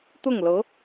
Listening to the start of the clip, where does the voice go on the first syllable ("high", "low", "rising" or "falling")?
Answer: falling